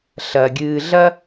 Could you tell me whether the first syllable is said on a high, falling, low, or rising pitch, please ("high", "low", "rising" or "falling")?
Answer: low